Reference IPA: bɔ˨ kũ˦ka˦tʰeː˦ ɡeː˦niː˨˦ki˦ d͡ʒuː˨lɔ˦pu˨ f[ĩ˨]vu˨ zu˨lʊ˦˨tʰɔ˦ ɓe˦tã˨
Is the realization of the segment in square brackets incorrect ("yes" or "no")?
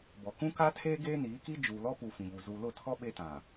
no